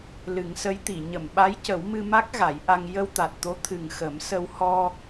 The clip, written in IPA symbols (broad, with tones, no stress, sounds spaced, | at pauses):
l ɨ˨˩˦ ŋ s ə˧˥ j t̪ i˨˩˨ ɲ ə˨˩˨ m ɓ a˧˥ j c ə˨˩˦ w m ɨ˧ m a˦˥ k̚ ɣ a˨˩˦ j ʔ a˧ ŋ j ə˧ w t̪ a˨˩ t̚ t̪ o˧˥ t̪ʰ ɨ˨˩ ŋ x ə˨˩˦ m s ə˧ w h ɔ˧